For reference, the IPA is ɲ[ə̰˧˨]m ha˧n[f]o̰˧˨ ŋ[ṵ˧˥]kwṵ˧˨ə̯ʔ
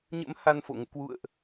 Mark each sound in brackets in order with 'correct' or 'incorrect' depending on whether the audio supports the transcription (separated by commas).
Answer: incorrect, correct, incorrect